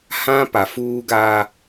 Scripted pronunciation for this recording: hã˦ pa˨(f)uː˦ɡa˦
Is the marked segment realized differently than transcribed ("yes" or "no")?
no